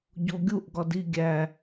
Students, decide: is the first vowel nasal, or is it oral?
oral